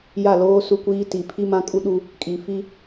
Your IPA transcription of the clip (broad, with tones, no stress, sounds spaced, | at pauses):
j a˦˨ l oː˦ s u˦ kʷ iː˦ t i˨ pʰ i˦ m ã˦ kʼ u˦ ɗ u˦ | kʼ i˨ f i˦